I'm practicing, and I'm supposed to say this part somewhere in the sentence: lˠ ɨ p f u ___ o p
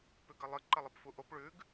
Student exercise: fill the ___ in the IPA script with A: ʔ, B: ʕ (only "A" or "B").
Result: A